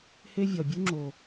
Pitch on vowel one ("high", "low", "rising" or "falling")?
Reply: high